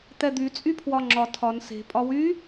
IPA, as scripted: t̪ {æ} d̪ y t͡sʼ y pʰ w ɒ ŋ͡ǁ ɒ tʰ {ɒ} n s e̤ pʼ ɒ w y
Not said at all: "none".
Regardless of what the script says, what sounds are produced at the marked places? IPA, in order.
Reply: ɛ, ɒ

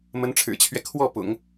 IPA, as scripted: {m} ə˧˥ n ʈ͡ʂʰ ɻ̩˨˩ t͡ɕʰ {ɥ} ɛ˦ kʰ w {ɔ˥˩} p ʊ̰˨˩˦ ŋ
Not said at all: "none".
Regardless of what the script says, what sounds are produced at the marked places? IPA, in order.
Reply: m, ɥ, ɔ˥˩

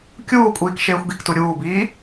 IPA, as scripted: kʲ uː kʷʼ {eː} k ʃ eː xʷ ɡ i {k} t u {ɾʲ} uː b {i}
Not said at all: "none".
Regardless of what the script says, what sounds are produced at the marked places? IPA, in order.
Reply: iː, k, ɾʲ, iː

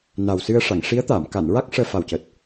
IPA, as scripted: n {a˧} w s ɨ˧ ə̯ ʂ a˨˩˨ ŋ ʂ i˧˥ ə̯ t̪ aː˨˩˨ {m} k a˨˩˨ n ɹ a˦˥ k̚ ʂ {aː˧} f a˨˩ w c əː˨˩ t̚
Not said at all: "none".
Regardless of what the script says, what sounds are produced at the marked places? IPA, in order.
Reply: a˨˩, m, əː˧

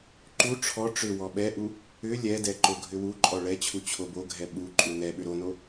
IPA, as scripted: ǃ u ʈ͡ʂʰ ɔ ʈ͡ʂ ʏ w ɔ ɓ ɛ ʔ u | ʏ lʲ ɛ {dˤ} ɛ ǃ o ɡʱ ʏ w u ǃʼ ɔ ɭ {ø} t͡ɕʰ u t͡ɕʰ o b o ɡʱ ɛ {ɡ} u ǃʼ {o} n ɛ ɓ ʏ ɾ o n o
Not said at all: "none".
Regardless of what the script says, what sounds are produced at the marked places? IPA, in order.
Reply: d, ɛ, ɓ, u

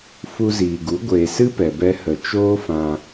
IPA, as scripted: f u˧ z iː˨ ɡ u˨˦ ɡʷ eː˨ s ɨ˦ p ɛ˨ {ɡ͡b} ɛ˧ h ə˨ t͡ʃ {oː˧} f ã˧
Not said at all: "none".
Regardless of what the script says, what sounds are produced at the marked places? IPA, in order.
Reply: b, oː˦

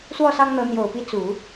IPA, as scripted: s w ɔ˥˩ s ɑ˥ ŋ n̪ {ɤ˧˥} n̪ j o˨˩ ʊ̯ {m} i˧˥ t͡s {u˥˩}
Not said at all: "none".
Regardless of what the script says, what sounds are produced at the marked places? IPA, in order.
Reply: ɤ˧˥, p, u˨˩˦

